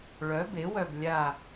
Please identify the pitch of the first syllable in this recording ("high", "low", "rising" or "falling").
rising